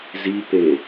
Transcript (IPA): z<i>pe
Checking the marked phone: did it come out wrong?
no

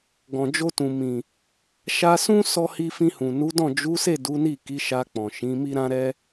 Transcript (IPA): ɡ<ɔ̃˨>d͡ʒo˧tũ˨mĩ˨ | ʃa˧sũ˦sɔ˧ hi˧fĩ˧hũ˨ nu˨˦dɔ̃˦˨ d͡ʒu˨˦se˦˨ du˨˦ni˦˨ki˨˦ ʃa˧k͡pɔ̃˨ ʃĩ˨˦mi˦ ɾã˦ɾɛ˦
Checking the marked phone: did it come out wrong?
no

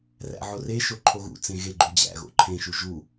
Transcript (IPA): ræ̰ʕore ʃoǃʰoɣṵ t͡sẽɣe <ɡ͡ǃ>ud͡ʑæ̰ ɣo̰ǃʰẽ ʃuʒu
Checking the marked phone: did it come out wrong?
no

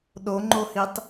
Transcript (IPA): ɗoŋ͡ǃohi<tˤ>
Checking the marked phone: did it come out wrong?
no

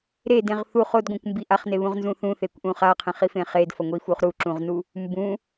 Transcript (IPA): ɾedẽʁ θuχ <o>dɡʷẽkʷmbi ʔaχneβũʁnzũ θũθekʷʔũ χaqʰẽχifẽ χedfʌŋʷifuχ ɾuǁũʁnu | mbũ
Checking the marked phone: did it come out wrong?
no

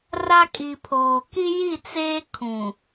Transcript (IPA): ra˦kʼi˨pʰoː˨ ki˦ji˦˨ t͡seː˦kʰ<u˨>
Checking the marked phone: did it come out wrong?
yes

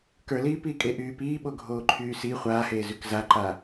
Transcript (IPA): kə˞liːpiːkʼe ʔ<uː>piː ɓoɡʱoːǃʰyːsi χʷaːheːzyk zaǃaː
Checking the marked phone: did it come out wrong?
yes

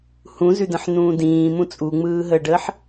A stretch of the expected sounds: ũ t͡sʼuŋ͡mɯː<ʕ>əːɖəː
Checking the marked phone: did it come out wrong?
yes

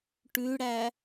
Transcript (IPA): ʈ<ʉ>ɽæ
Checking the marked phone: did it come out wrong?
no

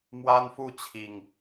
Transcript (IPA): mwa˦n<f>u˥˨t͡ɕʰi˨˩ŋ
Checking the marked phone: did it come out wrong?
no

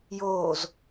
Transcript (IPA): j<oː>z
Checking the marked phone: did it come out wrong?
no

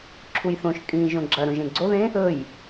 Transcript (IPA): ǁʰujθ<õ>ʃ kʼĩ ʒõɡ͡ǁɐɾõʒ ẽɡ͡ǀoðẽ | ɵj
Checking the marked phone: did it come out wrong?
no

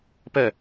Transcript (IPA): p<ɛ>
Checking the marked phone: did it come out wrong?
no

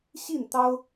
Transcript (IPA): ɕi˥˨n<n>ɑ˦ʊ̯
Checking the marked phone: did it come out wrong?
yes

